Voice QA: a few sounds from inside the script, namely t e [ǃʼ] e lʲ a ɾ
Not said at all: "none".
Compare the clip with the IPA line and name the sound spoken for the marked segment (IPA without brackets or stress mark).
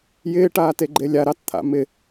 ɡ͡ǃ